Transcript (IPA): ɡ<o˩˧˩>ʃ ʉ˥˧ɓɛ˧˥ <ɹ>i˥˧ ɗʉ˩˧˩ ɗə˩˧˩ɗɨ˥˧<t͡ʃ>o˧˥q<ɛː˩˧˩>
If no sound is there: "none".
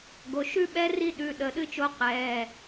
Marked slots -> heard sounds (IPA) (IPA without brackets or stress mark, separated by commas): o˩˧˩, r, t͡ʃ, ɛː˩˧˩